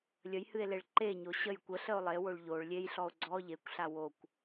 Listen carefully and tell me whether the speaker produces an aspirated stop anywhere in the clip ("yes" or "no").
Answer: no